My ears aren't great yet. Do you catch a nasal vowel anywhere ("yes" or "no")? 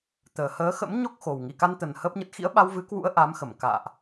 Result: no